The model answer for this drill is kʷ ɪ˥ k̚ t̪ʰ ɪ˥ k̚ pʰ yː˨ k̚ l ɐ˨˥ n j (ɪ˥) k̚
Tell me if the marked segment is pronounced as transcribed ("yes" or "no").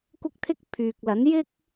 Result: yes